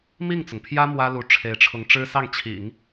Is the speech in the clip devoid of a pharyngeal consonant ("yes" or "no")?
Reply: yes